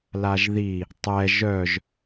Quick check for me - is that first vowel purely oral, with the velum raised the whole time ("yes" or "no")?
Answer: yes